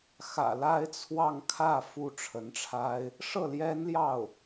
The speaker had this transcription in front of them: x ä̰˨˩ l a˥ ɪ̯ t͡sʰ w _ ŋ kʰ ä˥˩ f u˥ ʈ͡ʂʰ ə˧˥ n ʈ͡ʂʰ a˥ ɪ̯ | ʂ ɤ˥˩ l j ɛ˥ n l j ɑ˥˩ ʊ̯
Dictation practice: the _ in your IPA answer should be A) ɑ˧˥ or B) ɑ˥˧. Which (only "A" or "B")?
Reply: B